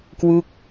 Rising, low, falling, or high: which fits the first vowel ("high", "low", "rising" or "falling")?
falling